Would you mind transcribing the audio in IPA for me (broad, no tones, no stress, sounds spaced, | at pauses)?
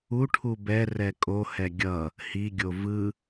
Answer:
u ʈʰ u b ɛ r ɛ kʼ o h ɛ ɡʲ ʌ | h i ɡʲ o v ɯ